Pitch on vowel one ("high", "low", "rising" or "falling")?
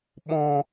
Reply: low